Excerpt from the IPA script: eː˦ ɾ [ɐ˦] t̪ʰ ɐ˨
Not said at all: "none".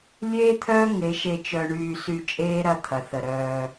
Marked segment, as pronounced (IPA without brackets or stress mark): ɐ˦